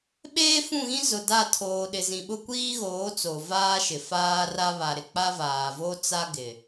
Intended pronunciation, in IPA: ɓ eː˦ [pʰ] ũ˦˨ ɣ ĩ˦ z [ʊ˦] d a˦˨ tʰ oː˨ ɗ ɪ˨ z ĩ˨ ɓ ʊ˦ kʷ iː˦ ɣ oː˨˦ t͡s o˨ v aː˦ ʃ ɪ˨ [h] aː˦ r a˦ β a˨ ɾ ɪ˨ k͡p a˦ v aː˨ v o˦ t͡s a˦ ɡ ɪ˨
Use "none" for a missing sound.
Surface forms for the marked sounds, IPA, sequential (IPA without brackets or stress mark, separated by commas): f, ʊ˨, f